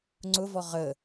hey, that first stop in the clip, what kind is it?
click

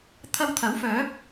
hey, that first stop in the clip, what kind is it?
aspirated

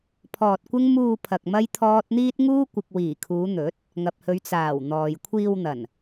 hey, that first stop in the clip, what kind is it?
aspirated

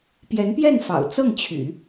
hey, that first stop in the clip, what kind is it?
plain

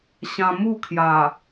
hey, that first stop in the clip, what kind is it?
aspirated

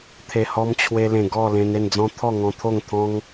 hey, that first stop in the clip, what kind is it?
aspirated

